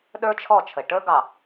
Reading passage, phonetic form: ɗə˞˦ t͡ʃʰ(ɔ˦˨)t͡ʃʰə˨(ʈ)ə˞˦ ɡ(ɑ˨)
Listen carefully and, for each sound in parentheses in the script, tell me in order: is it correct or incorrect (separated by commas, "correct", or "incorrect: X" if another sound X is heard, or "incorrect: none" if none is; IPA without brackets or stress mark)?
correct, correct, correct